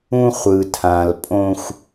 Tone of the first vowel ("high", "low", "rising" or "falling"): high